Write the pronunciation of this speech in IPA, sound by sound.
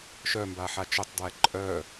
ʃ œ m b a ħ a t͡ʃ o tˤ d w ɛ ǃʼ œ

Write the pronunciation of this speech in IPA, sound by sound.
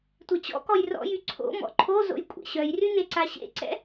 tʷ e t͡ɕ ɔ̰ k ɔ j r ɔ̰ j y ǀʰ o̰ m ɔ̰ ǃʰ o z o̰ j kʷʼ ɛ̰ ɕ œ j r y n e ǀ a ɕ ḛ ǀ ɛ̰

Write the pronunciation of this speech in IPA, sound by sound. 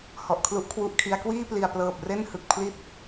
h ɔ˨˩ ʔ kʰ l u˦˥ ʔ kʰ w u˦˥ ʔ kʰ i˦˥ a̯ k w iː˥˩ p l i˨˩ a̯ p l ɤː˨˩ p̚ r e˥˩ n h ɯ˨˩ k̚ pʰ l i˥˩ t̚

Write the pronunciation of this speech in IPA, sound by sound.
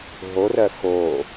ɦ o r ɜ x o

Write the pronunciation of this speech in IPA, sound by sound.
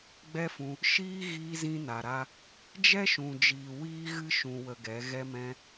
ɡ͡b ɛ˦ f ũ˧ | ʃ iː˦ ɣ iː˧ z ĩ˧ n a˨ ɾ a˧ | d͡ʒ ɛ˦ ʃ ũ˨ d͡ʒ iː˨ w iː˦ ɣ ɨ˦ ʃ ũ˧ w ə˧ ɡ ɛ˨˦ ɣ ɛ˧ m ɛ̃˧

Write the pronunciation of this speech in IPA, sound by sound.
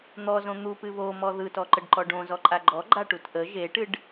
n̪ ɔ z õ n̪ u p ɨ β o m ɔ ð ɯ t ɔ ǃ ə ɖ ǃ ɔ ɖ õ z ɔ ǃʼ a ɡ͡ǃ ɔ ɡ͡ǃ a ʈ u t ʔ ə ʒ e ʈ ɨ ɖ

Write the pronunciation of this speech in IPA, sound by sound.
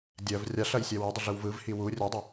dʲ ɜ v rʲ a ɬ ɐ j sʲ ɛ w ɐ dˤ ə ɮ ɯ w v ɯ v h i w u rʲ ɜ dˤ ɐ

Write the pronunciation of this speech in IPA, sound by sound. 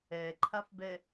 ɛ ǃʰ a f b ɛ

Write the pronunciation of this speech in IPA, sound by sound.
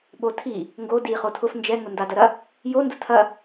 ɓ o tʰ i | ŋ ɡ o d i χ o tʰ ʊ f n d͡ʒ ɛ ŋ ʊ n d a d ɐ ɾ ɐ | j o n d ʊ tʰ ɐ

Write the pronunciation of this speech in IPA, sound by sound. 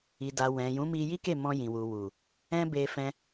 i˨ d a˨ w ɛ̃˨ j ũ˨˦ m i˧ j i˦ k e˦˨ m ɔ̃˧ j ĩ˨ w u˨ w u˨ | ɛ̃˦ b e˧ f ɛ̃˧

